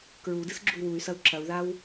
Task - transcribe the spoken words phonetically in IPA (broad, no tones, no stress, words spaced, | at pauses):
kɹudɨs ɡ͡ǁuy̯wuy̯sɐu̯ ǁɐu̯ðaw